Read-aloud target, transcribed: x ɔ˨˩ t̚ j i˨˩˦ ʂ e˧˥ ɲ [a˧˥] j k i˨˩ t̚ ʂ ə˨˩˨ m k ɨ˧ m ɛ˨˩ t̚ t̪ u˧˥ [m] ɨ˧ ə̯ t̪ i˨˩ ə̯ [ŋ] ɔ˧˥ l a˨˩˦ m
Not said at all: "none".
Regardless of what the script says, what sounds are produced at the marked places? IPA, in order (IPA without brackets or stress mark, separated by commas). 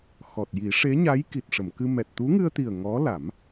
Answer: a˧˥, ŋ, ŋ